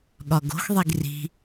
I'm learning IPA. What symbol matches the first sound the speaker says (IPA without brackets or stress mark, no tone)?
ɠ